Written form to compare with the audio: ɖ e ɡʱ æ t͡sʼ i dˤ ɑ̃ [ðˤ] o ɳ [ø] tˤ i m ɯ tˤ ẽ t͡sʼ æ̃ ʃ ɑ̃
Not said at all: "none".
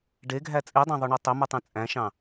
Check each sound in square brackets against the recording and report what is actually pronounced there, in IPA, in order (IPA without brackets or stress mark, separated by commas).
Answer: ðˤ, ø